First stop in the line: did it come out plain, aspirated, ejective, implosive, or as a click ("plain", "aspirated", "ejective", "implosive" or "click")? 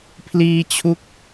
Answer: aspirated